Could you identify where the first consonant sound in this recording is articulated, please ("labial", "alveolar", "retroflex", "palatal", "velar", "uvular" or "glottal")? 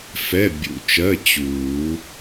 labial